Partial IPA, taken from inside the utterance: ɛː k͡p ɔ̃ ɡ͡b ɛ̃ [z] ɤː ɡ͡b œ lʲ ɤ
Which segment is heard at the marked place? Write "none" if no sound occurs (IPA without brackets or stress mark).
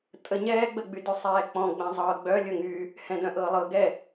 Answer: zˤ